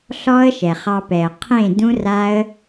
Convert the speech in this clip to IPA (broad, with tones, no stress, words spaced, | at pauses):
ɬɔ˦ə̯ʃɛ˨χɑ˧pɛ˨ə̯ qʰẽ˦˨ dũ˦ra˦ə̯